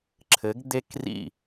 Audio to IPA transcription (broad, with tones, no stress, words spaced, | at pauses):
ǁʰɘ˩˧ɡ d̪e˧krḭ˧˩